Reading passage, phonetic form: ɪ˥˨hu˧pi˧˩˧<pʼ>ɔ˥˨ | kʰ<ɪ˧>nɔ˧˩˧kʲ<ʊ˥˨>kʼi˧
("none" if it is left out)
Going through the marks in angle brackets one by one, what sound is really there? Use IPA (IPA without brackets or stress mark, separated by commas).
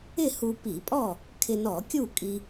pʼ, ɪ˧, u˥˨